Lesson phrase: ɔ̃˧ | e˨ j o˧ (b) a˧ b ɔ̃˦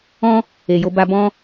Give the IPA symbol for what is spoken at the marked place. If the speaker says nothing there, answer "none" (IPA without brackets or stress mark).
b